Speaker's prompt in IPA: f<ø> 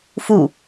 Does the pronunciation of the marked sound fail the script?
yes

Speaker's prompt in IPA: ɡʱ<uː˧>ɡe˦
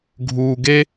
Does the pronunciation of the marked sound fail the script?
no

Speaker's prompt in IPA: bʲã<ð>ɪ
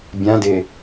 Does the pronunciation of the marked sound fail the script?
yes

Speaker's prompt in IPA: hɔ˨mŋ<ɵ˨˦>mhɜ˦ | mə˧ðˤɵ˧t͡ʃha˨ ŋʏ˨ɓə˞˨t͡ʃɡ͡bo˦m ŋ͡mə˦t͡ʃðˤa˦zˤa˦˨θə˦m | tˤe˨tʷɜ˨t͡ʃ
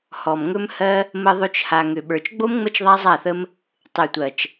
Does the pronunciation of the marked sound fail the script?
yes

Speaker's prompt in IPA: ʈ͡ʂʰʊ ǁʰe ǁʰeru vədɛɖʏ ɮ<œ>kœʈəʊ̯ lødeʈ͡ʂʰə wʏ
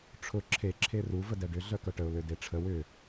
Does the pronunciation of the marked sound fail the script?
no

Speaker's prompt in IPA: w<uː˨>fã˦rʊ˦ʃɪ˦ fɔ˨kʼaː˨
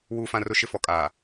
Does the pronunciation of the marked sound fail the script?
yes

